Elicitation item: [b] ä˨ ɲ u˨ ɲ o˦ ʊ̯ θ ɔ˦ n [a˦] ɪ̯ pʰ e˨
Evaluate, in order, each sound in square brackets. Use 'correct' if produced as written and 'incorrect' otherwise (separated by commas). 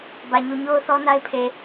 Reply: correct, correct